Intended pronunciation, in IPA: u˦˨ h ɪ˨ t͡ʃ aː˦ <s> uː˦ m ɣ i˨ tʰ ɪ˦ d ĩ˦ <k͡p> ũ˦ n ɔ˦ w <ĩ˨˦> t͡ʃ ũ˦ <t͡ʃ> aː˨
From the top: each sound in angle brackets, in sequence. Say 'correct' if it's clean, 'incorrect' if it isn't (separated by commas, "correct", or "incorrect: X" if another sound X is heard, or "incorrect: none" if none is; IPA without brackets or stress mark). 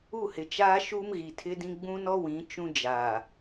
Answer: incorrect: ʃ, incorrect: ɡ͡b, correct, incorrect: d͡ʒ